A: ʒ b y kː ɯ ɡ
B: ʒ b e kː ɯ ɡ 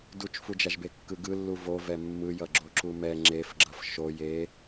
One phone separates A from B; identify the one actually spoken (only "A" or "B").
B